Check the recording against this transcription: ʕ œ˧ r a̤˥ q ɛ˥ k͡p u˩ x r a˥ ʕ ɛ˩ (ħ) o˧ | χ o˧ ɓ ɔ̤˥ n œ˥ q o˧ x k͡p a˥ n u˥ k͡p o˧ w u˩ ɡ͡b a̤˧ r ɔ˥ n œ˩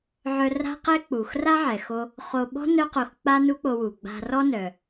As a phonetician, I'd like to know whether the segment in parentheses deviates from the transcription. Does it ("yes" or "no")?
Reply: yes